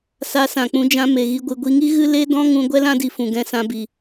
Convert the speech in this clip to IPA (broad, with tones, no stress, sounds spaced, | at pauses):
s a˧ s ã˨ k͡p ũ˧ d͡ʒ ã˧ m e˨ ɣ i˧ ɡʷ ɨ˨ ɡʷ i˧ ŋ i˦ ɣ ɨ˦ l e˦ d ɔ̃˦ ŋ ũ˧ ɡʷ ɛ˦ l ã˦ d i˨ f ũ˨ ɡ ɛ̃˧ s ã˧ b i˨